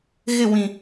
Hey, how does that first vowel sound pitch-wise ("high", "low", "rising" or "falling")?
falling